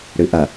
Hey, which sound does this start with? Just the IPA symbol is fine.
ɽ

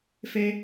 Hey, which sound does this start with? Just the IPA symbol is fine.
f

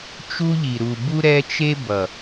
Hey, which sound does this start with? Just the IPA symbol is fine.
t͡ʃ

